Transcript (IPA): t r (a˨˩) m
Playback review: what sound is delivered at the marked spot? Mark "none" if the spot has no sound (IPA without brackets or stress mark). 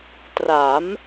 a˩˦